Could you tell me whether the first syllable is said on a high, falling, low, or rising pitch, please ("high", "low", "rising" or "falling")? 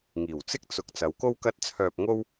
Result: low